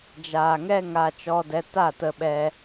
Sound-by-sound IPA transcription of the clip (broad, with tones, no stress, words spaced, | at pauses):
d͡ʒaː˨ŋɛ˦ ŋaː˧t͡ʃɔ˧dɛ˧ta˦˨ tə˧ɓɛ˧